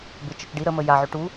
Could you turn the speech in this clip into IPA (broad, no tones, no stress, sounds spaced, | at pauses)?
b ɪ t͡ʃ ə t͡ʃ ɖ i ɾ ə m ə j a ʕ ʏ ʈ u